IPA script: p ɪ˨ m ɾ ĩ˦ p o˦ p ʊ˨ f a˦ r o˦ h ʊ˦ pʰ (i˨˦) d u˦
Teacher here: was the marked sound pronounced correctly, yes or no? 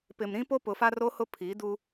yes